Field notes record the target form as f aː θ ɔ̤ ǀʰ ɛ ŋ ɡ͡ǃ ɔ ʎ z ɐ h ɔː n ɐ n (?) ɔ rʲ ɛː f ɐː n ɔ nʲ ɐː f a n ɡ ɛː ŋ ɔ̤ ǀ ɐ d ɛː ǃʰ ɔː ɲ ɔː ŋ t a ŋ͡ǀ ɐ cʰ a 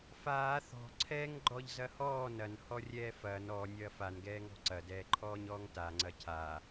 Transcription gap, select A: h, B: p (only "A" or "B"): A